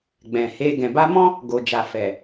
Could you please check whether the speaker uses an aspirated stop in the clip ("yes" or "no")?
no